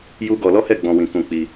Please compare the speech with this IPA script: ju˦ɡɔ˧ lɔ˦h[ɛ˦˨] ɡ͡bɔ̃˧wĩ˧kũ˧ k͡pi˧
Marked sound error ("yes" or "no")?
no